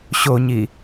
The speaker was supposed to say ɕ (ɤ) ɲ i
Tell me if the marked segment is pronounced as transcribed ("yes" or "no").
no